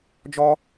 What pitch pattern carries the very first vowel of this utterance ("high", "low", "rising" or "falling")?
high